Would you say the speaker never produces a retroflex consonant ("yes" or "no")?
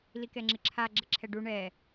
no